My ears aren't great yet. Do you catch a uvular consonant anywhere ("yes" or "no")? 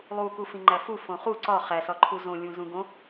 yes